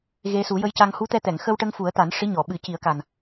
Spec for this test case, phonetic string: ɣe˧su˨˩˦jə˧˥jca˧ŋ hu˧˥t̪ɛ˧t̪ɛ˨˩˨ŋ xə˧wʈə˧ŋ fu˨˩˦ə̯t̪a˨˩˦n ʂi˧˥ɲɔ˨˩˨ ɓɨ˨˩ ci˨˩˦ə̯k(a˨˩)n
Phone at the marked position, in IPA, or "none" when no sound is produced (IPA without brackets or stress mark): a˨˩